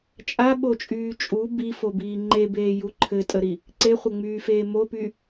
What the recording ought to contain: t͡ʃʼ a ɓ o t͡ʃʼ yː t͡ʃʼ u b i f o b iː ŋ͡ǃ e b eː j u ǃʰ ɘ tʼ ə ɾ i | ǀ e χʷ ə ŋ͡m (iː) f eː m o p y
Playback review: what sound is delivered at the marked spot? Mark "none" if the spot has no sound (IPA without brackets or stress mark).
yː